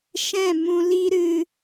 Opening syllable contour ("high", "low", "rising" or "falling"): falling